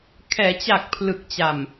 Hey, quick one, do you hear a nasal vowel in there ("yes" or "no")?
no